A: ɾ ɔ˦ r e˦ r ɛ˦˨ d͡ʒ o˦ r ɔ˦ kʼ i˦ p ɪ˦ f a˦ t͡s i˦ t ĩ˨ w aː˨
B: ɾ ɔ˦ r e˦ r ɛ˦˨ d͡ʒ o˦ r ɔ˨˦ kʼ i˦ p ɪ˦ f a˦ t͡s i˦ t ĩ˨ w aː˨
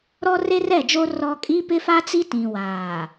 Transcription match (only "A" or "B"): A